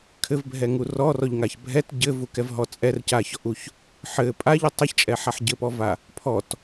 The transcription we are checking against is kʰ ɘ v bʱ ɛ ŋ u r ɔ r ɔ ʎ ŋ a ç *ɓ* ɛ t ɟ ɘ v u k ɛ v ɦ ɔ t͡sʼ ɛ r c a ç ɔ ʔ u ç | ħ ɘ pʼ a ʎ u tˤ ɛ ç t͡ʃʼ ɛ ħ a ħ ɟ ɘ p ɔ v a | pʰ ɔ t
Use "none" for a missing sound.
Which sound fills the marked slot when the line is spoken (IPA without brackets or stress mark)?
bʱ